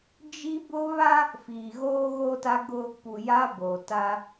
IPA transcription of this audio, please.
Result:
d͡ʒ i˦ b ʊ˦ β a˦ | f iː˨ ɣ oː˦ ɣ o˦ t a˦ ɡ ʊ˦ | p u˨ j a˦ b o˨ t a˦

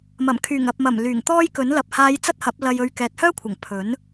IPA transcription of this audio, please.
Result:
m ɐ˨˩ m kʰ yː˨˩ ŋ ɐ˨ p̚ m ɐ˨˩ m l yː˨˩ ŋ t̪ ɔː˥ j k ɵ˨˥ n l ɐ˨ p̚ h aː˨˧ j t͡s ɐ˥ t̚ h ɐ˨˥ p̚ l ɐ˧ j ɵ˧ ɥ k ɛː˨ t̚ h œː˥ kʷʰ ɐ˨˩ ŋ pʰ ɵ˨˥ n

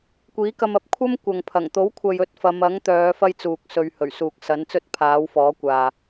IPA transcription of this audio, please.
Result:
kʷ iː˨˥ k ɐ˧ m ɐ˨˥ p̚ kʷʰ ɐ˥ m kʷ ɐ˨ ŋ pʰ ɐ˨˩ ŋ t̪ o˨˥ w kʷʰ ɐ˨ j ɵ˨˥ t̚ f ɐ˨˧ m ɐ˨˥ ŋ t̪ œː˨˧ f ɐ˥ j t͡s uː˨ k̚ s ɵ˨˧ ɥ h ɵ˨˩ ɥ s uː˨ k̚ s ɐ˨˥ n t͡s ɵ˥ t̚ pʰ aː˨˥ w f ɔː˨˥ kʷ aː˨

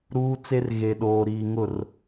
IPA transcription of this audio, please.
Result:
ɾ uː˦ t͡s e˦ r ɣ e˨ ɗ oː˨ ɾ iː˨ ŋ ʊ˦˨ r

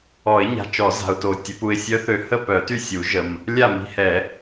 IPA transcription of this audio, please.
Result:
ɔ˨˩˦ ɪ̯ ɲ a̤˨ t͡ʃ ɔ˨˩˦ z a̤˨ ʊ̯ t o˨ tʲ ə˨˩˦ p u˨ ɪ̯ sʲ œ˧˥ θ ø˨ h ə˥˨ p œ˨˩˦ t y˥˨ sʲ u˨˩˦ ʒ ə˨ m | lʲ a˥˨ m i̤˧˥ h ɛ˨˩˦

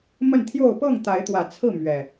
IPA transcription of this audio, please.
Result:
m ə˥˨ n t̪ʰ j o˥˨ ʊ̯ p ɤ˥˨ ŋ t̪ a˨˦ ɪ̯ t̪ w ä˨˩ t͡sʰ ɹ̩˥˨ m ɥ ɛ˨˩

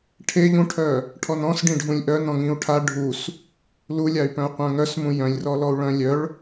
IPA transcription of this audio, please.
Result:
ʈʰ e ʎ ũ ʈʰ œ | ʈʰ ɔ n ɔ̃ s ɖ ĩ ɖʱ ũ lʲ ʔ œ n ɔ̃ ŋ ĩ u̯ ʈʰ a ɖʱ u s | l u lʲ a y̯ p œ̃ u̯ qʷ œ̃ ŋ œ s m ũ j œ̃ lʲ r ɔ l ɔ u̯ ɭ œ̃ lʲ œ ɭ

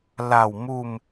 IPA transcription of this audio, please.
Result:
l a˧˩ w m u˧˩ m

